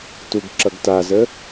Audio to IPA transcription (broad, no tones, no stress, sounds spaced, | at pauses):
t u ɡ ǁ ʌ ɡ t a z ə